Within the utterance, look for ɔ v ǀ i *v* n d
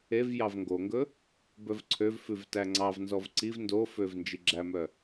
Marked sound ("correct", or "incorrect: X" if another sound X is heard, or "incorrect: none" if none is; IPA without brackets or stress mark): correct